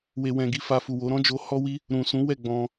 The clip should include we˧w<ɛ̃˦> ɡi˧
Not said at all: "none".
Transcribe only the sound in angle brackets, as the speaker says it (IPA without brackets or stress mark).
ɛ̃˧